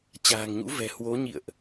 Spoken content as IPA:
t͡ɕ a̤ː˨˩ ŋ ɲ ṵ˧˥ v ɛ̤˨˩ h w o˨˦ ɲ ḭ˧˨ ə̯ ʔ

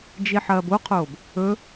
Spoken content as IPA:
d͡ʒ i ħ ɐː b o qʰ oː b | ɵ

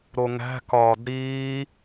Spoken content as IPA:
ɾ o ŋ æ̤ k ɒː d ɾ iː

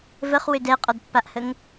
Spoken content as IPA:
v ə χ w ø d ɛ qʼ ɔ d pː a ʔ h ə ŋ

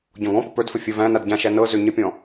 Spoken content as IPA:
ɟ ɔ̃ ɡ ɔ̃ p ə p ə˞ d f ə fʲ ə v æ̃ n a d ɟ ã ʃ æ n ɤ z ø ɲ ə pʲ ɔ̃

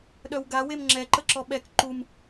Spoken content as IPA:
ɗ œ w ɡ a w e m ŋ͡ǁ ɛ ǃ ə ǁ ɔ ɓ ɛ k ǃ u m

